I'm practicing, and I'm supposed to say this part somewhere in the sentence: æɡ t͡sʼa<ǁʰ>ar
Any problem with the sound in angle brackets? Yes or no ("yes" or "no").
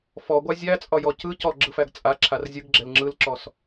no